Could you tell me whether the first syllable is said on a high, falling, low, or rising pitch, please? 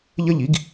falling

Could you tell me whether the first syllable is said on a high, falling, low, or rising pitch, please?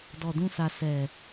low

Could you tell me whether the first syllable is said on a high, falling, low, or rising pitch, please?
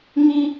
high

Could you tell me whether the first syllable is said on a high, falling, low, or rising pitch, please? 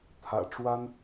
low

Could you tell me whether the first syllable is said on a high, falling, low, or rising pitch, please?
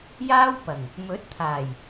high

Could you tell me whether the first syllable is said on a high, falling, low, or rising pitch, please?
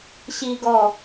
high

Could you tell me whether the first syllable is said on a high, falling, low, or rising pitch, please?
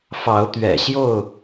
rising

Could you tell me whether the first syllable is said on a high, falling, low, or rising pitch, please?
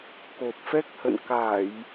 low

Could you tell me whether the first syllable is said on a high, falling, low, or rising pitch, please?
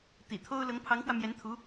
low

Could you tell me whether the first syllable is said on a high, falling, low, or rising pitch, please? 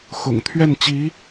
low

